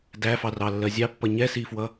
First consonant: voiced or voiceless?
voiced